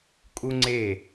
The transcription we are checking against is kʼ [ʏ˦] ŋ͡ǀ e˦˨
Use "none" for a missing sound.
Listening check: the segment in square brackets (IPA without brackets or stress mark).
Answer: u˦